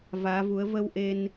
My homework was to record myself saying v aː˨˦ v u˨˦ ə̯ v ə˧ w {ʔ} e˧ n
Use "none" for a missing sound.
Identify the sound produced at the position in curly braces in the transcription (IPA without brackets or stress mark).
ʔ